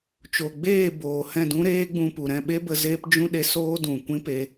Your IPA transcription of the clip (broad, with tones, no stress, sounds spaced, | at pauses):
t͡ʃ o˨ ɡ͡b eː˦˨ b oː˨ h ɛ̃˦˨ d ũ˦ ɾ eː˦ ɡ͡b ũ˧ p u˨ ɾ ɛ̃˦˨ ɓ e˦ b ə˧ z eː˦ p d͡ʒ ũ˦ ɗ e˧ s oː˦ d ũ˨ kʷ ĩ˦ p e˧